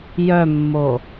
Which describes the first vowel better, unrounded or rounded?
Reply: rounded